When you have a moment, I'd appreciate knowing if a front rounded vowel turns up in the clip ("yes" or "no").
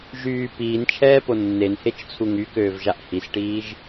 yes